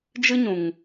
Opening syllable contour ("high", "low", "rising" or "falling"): high